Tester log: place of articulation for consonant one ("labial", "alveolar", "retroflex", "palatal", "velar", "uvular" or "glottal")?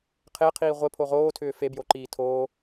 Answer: uvular